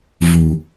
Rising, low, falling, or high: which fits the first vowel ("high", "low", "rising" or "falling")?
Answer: low